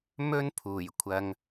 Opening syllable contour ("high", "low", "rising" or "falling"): high